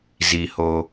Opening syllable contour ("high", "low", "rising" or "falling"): low